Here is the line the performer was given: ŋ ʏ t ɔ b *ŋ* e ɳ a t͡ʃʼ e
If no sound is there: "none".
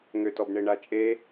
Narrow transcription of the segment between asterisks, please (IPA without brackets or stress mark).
ɳ